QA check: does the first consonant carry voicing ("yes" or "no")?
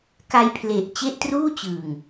no